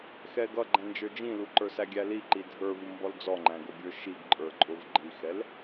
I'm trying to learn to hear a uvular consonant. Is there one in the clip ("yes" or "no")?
no